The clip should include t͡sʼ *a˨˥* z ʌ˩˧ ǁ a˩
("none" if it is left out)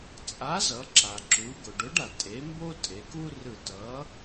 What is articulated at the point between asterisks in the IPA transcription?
a˨˥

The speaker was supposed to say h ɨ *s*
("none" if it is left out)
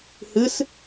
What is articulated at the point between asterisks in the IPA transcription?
s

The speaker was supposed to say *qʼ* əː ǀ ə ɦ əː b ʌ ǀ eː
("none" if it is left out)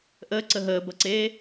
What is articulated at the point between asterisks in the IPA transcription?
ʔ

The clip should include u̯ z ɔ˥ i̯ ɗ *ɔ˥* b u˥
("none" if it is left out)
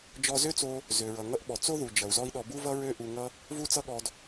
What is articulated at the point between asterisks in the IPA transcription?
ɔ˧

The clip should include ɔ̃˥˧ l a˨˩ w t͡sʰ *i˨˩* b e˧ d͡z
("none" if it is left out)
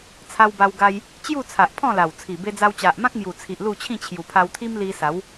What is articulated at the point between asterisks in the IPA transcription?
i˨˩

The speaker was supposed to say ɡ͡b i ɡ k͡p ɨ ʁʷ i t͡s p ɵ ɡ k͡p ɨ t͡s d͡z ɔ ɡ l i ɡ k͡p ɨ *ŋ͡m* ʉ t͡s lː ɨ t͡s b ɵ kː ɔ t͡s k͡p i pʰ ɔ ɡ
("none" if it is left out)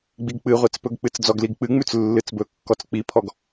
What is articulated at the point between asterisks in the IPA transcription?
ŋ͡m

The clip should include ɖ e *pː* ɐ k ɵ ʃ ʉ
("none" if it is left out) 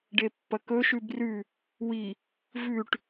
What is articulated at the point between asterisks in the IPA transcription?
pː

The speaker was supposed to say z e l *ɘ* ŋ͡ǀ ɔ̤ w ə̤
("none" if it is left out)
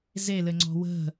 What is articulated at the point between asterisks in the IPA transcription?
ɘ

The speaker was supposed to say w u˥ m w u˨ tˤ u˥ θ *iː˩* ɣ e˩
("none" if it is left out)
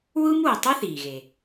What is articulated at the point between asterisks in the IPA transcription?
iː˩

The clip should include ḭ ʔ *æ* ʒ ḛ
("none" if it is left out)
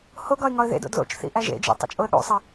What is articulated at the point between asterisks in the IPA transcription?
æ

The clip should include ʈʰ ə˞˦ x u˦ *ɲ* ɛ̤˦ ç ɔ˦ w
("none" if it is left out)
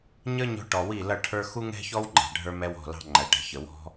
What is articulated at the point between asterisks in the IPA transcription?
ŋ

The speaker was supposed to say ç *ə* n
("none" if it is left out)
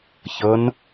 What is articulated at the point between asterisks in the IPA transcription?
ə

